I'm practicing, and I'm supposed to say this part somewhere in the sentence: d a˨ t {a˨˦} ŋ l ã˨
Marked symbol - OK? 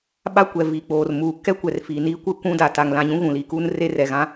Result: no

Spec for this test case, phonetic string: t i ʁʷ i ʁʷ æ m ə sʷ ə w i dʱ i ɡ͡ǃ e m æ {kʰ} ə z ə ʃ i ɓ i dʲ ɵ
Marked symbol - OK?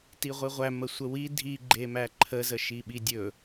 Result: no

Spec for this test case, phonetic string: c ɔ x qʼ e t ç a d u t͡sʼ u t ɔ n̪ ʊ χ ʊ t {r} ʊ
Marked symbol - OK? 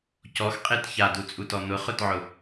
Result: no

